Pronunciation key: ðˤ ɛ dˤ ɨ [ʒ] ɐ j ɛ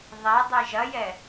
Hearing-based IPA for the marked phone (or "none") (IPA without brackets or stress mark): ʒ